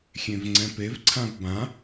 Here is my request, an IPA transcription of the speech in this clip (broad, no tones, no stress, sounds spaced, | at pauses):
xʲ ẽ v ŋ͡ǀ ɛ̃ p e v ǀʰ ã v b ã